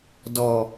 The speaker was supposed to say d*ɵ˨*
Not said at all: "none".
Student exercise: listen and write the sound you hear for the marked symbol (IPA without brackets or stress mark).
ɔ˨